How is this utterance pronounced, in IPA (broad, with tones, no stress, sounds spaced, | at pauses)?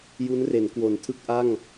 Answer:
j u˦˥ n r e˩˦ n k w o˩˦ n tʰ ɯ˦˥ k̚ ʔ a˥˩ ŋ